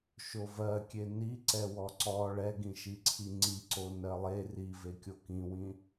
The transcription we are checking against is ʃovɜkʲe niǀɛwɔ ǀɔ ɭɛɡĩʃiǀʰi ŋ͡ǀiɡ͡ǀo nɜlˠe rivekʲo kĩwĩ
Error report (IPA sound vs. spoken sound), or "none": ɡ͡ǀ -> ǀ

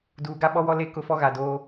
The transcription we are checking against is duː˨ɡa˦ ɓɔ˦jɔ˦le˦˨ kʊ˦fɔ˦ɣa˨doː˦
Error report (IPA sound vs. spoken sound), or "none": j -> w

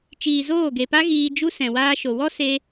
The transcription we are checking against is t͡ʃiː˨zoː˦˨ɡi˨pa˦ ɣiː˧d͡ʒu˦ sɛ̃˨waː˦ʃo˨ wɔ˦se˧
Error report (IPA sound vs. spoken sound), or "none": i˨ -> e˨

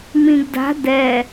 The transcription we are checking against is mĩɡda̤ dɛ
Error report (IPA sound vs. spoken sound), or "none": none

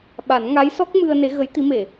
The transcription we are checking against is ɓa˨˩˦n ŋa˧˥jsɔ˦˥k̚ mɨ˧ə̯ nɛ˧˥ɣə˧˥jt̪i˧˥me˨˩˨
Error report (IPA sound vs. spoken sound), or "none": ɛ˧˥ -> e˧˥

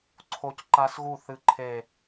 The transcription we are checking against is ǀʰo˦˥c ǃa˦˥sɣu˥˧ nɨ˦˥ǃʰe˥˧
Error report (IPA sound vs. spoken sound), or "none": n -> θ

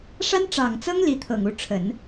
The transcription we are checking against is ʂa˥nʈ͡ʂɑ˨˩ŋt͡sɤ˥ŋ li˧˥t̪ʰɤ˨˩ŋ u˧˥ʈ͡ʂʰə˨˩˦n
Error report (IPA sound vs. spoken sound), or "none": none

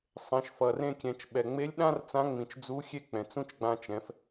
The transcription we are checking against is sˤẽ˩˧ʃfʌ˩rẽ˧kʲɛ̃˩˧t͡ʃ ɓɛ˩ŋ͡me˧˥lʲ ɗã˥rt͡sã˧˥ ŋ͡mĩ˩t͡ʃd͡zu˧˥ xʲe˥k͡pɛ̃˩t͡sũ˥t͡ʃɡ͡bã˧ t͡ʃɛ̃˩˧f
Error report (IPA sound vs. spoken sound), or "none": none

